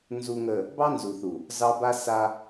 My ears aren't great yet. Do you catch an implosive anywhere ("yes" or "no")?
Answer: no